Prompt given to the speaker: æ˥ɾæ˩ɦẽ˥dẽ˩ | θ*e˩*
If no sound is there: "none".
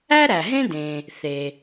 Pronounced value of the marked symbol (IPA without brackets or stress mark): e˩